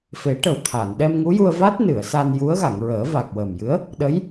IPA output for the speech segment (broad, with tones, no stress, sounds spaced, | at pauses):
f e˨˩˦ ʈ ə˨˩ w t̪ʰ a˨˩˨ n ɗ ɛ˧ m ŋ u˧˥ j u˧ ə̯ v a˦˥ t̚ n ɨ˨˩˨ ə̯ s a˧ n j u˧˥ ə̯ ɣ a˨˩˨ ŋ ɹ əː˨˩˦ v a˨˩ k̚ w əː˨˩ m j ɨ˧˥ ə̯ | ɗ ə˧˥ j